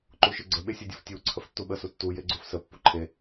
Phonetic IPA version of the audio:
ǃ u ʃ ɨ ɡ͡ǀ ə ɓ e sʲ ʌ dʲ u f tʲ u ǀʰ ə f tː u ɓ ə s u tː u j e ɡ͡ǀ u f s ə pː u ǃʰ e

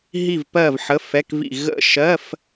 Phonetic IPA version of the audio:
ɦ i˦˨ v p ɜ˦˨ v ħ ə˧˥˧ f ɛ˧˥˧ k v ḭ˦˨ ɣ ə̰˦˨ ʃ ɜ˧˥˧ f

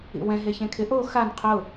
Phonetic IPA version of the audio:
ḭ w ɛ̃ ɦ e ç ẽ kʰ ɪ ʔ o x a n qʰ ʊ

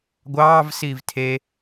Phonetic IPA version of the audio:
ɡʷ ɑː v s iː v tʰ e

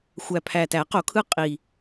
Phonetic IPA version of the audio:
xʷ æ˨˩ pʰ æ˨˩ t æ˨˩˦ q o˨˩˦ kʰ ɯ˦˥ qʼ i˨˩

